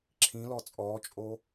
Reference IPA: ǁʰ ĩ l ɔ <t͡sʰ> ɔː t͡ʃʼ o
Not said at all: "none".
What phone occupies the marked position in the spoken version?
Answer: t͡sʼ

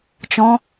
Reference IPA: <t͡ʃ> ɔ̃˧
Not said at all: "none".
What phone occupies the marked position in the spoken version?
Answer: t͡ʃ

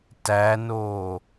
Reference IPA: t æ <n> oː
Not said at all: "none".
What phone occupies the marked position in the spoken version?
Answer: n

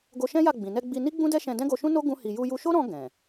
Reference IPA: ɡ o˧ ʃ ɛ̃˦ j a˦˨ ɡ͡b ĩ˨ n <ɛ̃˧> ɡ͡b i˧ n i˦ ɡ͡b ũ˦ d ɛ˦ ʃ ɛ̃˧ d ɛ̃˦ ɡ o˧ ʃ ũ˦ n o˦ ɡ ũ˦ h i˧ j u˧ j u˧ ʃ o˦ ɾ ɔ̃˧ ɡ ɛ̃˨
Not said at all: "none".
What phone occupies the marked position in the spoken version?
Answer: ɛ˧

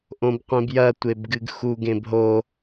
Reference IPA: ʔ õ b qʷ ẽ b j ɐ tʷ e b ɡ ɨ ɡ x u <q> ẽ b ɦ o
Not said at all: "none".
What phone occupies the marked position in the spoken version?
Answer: ɡ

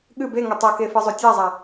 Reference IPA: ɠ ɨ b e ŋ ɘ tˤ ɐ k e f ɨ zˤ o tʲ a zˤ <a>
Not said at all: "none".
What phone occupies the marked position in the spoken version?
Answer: a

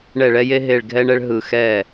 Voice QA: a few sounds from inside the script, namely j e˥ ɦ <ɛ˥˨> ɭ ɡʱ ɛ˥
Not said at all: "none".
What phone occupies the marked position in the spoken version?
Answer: e˥˨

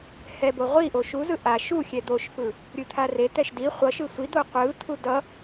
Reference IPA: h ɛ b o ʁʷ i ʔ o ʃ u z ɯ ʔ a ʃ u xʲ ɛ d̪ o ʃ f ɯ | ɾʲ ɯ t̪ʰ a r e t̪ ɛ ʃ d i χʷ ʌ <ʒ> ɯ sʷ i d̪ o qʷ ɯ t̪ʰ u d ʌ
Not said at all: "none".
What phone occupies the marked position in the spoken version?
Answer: ʃ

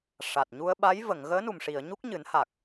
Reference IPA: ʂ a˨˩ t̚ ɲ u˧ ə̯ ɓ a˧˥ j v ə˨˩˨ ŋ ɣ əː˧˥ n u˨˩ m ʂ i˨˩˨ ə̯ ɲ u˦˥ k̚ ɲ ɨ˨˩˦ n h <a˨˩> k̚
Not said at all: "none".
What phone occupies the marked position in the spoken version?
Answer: a˨˩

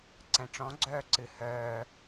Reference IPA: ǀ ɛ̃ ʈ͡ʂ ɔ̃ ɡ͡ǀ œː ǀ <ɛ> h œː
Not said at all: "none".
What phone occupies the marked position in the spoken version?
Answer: ɨ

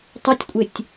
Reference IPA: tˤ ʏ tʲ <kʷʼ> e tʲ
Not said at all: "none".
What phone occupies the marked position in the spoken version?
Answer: kʷʼ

